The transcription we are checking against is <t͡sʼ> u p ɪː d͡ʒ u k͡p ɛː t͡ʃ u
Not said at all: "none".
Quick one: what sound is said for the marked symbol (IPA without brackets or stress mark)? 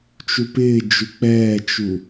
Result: t͡ʃ